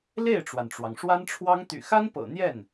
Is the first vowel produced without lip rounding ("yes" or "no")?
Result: yes